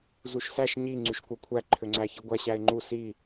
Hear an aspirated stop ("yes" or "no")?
yes